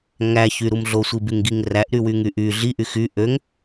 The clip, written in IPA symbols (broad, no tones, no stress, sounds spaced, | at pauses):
ŋ æ ç y ɾ u m ɮ o sʷ i b y ŋ ɡ i ŋ r æ ʔ ɾ y w y ŋ y ʔ y ɮ i ʔ y x y ʔ ø ŋ